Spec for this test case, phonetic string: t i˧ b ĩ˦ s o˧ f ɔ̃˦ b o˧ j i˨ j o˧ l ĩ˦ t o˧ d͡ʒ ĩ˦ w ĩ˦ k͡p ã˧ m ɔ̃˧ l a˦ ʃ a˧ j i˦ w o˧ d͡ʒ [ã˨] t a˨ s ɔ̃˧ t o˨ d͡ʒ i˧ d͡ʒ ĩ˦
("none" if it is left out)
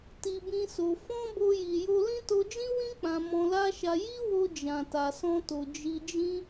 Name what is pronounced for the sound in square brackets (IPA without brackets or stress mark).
ã˨